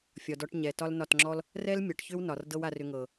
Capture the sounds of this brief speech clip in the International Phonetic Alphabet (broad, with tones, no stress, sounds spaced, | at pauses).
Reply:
fʲ ɒ˨ d ɔ˧ ʈ ɲ ɛ˨ t ɒ˦ l n ɒ˦˨ t ŋ͡ǁ ɔ˦ l | r ɛ˦ l mʲ ɒ˨ ʈ ç ʏ˦ w n ɒ˨ r d ɤ˦ w a˧ r ʏ˧ ŋ ɤ˨